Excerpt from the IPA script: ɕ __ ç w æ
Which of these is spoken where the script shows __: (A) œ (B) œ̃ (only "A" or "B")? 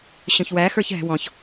B